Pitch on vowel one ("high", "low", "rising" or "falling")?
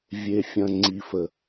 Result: low